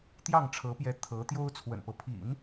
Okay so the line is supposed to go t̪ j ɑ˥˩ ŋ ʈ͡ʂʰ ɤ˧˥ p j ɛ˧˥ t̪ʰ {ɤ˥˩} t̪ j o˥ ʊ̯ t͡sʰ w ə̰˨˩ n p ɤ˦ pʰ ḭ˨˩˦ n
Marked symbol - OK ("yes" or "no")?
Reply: no